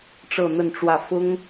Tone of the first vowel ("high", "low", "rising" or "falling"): falling